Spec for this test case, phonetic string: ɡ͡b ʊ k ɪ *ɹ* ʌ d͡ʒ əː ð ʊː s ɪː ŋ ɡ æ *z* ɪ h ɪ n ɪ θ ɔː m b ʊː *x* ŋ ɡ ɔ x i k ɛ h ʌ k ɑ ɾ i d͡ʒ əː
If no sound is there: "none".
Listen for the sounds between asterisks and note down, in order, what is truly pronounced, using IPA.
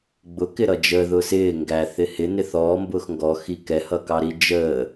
ɾ, θ, x

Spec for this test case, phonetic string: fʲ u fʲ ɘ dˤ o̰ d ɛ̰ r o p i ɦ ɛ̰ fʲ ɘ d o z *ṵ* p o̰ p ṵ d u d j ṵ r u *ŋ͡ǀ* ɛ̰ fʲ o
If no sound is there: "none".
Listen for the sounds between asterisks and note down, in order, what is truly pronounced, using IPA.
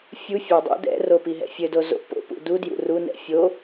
o̰, n

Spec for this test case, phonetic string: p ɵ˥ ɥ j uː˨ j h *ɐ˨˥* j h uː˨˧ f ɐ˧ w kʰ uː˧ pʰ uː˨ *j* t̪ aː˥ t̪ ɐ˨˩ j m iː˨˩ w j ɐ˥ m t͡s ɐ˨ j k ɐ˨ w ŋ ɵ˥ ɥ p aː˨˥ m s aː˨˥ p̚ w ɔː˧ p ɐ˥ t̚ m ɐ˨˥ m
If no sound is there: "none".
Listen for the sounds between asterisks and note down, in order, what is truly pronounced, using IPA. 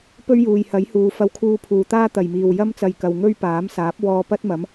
ɐ˨˥, none

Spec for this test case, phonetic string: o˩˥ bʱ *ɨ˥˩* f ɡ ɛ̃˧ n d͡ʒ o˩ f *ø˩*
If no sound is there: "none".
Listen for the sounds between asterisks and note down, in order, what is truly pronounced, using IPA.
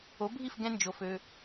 i˥˩, ø˩

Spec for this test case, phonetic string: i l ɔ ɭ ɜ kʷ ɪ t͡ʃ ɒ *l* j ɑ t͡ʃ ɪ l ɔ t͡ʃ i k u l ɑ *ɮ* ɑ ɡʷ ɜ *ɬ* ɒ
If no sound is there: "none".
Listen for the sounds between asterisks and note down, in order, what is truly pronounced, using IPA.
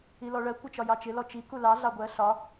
none, ɮ, ɬ

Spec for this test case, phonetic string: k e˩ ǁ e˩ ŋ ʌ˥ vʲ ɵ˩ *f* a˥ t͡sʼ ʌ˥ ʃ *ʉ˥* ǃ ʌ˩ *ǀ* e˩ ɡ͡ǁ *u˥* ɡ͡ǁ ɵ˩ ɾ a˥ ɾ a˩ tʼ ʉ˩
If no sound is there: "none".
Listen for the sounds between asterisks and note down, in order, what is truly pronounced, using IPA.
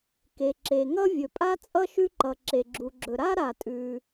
pʼ, ʉ˥, ǁ, u˩

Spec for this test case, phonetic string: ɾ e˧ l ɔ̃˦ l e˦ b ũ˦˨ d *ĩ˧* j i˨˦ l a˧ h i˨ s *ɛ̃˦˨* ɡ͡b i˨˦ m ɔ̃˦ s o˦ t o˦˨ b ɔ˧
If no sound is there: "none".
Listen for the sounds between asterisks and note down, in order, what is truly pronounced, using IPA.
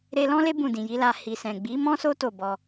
ĩ˨, ɛ̃˨

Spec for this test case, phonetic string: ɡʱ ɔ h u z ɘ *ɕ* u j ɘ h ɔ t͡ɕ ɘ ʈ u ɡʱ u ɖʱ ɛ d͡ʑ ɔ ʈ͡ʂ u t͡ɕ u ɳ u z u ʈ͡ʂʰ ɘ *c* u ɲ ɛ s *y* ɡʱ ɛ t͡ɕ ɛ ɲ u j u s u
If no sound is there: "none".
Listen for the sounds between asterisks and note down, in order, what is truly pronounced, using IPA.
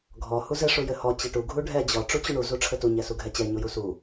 ʂ, t, u

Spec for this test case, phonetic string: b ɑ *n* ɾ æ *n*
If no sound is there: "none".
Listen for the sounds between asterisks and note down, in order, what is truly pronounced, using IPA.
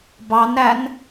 n, n

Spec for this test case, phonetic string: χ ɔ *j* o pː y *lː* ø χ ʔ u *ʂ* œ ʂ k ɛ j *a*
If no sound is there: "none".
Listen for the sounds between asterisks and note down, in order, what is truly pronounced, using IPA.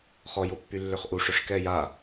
j, lː, ʂ, a

